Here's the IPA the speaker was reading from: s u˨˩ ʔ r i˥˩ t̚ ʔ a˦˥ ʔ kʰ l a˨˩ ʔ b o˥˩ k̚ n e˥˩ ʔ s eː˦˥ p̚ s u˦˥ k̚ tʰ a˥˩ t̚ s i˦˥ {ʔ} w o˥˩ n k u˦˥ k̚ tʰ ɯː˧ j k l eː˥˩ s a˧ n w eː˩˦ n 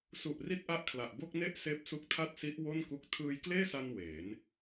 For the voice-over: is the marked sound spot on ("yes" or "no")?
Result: yes